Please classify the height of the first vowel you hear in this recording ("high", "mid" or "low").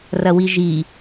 low